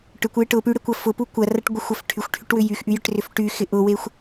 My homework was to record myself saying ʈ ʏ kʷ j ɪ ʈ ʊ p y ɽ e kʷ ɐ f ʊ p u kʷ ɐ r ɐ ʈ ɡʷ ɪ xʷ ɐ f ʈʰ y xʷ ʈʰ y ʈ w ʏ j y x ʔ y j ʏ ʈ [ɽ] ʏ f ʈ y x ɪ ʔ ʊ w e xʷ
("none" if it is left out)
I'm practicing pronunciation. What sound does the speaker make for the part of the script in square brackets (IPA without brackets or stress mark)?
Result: r